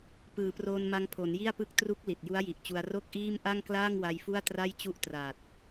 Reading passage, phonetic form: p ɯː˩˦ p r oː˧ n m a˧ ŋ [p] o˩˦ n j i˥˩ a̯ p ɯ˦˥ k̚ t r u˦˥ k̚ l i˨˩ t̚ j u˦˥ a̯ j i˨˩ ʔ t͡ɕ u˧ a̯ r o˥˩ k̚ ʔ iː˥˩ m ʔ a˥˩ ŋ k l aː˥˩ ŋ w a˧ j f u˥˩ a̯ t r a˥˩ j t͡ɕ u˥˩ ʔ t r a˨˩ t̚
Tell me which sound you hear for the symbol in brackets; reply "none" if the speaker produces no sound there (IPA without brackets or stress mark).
pʰ